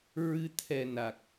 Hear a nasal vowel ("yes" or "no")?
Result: no